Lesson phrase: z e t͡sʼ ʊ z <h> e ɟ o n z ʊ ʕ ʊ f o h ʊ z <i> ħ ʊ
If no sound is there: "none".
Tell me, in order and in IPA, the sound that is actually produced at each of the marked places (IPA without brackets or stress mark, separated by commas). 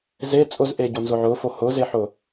ʔ, e